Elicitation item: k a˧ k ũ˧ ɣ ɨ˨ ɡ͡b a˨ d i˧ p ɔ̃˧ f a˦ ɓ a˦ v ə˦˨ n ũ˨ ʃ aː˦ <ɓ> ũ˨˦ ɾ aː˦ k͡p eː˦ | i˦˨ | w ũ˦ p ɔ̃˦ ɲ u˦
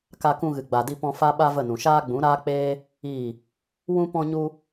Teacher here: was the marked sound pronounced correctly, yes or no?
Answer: no